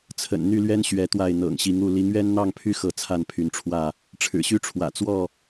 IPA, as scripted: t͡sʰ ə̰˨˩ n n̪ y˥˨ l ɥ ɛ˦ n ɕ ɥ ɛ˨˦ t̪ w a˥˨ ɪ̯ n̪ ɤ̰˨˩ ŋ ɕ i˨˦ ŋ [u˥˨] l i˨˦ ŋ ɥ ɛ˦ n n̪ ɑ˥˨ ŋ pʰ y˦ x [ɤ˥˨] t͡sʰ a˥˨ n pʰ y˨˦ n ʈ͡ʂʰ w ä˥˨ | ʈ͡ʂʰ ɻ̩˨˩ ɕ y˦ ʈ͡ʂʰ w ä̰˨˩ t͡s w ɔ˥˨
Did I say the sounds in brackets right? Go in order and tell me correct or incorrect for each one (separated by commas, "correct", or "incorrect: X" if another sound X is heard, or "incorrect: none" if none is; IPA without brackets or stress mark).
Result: correct, correct